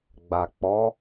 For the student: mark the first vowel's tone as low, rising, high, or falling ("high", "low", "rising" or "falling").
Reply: low